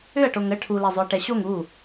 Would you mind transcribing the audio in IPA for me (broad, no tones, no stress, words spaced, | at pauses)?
ʏɐ̯ʈoŋ ə ʈʰule zˤʏɐ̯ʈɛɕoŋ u